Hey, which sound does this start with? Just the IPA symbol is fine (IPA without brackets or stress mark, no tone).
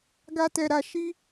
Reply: ɡ